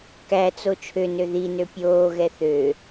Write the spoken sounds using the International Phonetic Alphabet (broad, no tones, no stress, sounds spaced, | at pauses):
k æ t͡s o t͡ʃʰ ø n ø ð i n ø pʲ oː ɣ ɛ θ ø